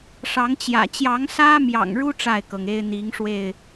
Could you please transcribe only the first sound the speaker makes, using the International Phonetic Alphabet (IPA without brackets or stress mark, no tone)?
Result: ʂ